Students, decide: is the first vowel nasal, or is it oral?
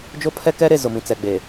oral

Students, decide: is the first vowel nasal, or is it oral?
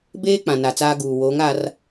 oral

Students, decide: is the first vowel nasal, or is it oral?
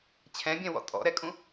nasal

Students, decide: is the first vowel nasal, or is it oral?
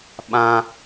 nasal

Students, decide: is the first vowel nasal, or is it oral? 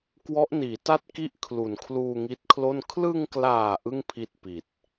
oral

